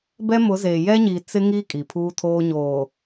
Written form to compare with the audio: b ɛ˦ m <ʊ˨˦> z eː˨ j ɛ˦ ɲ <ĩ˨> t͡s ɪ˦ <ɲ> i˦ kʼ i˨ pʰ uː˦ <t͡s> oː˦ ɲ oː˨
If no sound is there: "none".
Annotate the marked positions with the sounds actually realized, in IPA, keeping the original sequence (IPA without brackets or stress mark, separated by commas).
ʊ˨˦, i˨, ŋ, tʰ